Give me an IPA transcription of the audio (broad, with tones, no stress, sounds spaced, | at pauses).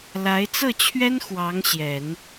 l a˧˥ ɪ̯ t͡s ɤ˥˩ t͡ɕʰ ɥ ɛ˥ n x w ɑ˧˥ ŋ ɕ j ɛ˨˩˦ n